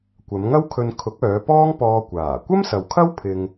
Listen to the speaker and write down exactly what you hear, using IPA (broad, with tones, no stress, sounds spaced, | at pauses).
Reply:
kʷ ɐ˨˧ m ŋ ɐ˥ w kʰ ɵ˧ n kʰ ʊ˨˥ k̚ œː˨˧ p ɔː˥ ŋ p ɔː˧ kʷ aː˨˩ kʷ ɐ˥ m s ɐ˨ w kʰ ɐ˥ w pʰ ɪ˧ ŋ